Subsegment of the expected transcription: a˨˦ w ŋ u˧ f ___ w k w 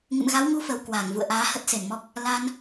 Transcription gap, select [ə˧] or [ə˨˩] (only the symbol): ə˨˩